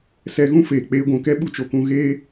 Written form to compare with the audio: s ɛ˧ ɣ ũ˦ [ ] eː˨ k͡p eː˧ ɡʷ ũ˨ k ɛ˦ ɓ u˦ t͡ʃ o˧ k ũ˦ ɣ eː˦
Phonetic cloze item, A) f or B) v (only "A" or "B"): A